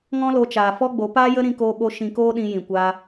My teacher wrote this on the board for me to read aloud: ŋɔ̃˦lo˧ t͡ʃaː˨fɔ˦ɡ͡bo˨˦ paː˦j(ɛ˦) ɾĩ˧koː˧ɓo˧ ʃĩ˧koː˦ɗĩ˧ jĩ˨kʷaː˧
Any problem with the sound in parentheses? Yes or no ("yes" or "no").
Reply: yes